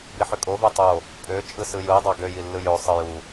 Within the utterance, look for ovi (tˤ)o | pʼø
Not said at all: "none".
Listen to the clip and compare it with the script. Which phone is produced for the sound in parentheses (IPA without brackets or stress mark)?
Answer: tˤ